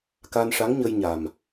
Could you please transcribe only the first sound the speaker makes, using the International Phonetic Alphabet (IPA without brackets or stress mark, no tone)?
k